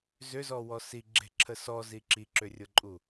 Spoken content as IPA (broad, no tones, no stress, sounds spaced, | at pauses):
z ʏ z ɔ w ɔ s i ɡ͡ǁ e̤ ǁʰ ə s ɔ z i ǁ i ǁ ʏ rʲ ʊ ǃʼ u